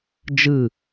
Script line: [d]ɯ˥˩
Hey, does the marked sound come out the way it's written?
no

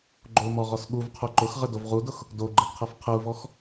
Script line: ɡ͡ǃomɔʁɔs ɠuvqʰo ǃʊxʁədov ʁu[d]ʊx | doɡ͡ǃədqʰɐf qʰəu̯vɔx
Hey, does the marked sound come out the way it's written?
yes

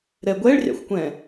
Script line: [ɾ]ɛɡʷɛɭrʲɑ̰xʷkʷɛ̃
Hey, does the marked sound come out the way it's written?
yes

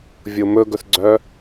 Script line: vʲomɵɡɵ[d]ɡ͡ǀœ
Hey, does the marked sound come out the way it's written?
no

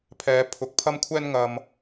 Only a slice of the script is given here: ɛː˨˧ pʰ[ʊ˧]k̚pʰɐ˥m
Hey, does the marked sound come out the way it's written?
no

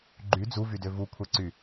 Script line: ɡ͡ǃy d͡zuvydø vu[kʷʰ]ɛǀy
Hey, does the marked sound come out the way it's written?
yes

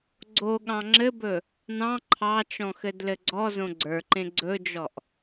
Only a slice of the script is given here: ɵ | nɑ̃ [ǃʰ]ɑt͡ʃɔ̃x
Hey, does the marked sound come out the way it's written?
yes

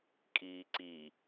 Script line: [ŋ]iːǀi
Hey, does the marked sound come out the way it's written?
no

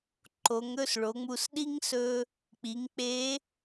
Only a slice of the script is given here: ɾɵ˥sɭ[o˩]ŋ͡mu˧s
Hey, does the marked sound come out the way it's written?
no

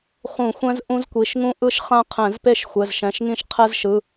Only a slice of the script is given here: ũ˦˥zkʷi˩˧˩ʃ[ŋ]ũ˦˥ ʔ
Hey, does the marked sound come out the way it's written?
yes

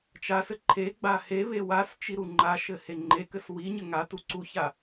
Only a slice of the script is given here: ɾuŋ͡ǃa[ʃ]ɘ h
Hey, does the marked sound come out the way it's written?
yes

